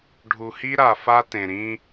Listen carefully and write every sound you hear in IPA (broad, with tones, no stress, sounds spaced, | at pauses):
ɖʱ u˨ h i˦ ɾ a˨ f a˦ t ẽ˨ ɾ ĩ˦